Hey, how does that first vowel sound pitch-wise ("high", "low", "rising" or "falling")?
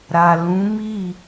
low